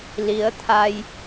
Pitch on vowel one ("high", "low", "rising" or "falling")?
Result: rising